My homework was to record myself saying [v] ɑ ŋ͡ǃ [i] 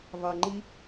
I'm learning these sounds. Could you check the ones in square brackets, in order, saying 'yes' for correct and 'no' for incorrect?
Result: yes, yes

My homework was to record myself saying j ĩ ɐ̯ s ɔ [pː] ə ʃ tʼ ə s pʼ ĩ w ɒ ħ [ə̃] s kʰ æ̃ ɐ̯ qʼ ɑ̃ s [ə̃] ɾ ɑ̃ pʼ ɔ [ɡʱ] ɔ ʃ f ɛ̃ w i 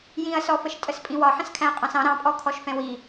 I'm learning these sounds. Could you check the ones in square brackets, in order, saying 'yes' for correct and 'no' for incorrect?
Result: no, yes, no, no

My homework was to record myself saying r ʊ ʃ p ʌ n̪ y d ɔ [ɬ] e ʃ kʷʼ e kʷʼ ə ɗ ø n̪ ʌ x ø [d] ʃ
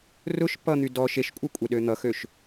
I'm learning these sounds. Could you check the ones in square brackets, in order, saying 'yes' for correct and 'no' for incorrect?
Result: no, no

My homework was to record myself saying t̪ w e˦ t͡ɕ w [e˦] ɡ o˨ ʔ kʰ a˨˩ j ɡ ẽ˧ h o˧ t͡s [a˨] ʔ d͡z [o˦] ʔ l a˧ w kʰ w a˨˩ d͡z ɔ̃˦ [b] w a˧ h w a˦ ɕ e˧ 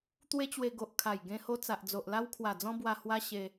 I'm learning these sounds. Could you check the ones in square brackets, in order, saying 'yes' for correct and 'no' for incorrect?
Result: no, yes, no, yes

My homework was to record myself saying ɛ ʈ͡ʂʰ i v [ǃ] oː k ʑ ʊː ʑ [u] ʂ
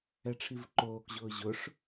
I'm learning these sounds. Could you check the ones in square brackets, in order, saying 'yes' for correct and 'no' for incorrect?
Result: yes, no

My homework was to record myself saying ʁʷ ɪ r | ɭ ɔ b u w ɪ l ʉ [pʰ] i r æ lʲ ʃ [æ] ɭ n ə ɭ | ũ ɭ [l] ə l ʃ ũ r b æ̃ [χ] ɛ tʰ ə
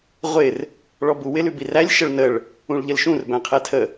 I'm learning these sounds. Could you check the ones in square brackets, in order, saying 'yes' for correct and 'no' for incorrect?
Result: no, no, no, no

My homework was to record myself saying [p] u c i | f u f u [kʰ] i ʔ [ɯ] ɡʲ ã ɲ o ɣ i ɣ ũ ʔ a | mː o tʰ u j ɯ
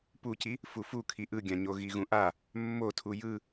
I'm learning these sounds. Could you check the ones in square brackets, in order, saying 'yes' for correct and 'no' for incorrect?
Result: yes, yes, yes

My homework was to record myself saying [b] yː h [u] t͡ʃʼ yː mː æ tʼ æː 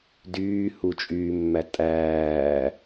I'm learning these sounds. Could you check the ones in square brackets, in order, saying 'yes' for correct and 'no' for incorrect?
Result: no, yes

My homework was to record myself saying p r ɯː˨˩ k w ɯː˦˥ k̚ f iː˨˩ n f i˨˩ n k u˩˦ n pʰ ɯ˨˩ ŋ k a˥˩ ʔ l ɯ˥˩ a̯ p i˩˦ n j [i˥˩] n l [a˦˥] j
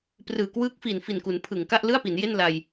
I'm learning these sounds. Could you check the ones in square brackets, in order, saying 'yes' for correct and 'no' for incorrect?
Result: no, no

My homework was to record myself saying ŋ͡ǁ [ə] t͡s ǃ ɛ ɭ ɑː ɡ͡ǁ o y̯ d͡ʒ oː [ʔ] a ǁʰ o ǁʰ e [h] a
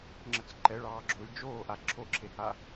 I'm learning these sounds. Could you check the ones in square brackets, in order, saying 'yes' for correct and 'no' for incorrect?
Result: yes, yes, yes

